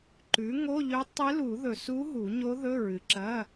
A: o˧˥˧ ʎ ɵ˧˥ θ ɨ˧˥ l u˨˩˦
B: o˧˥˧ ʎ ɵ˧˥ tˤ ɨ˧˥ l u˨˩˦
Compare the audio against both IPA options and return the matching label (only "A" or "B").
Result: B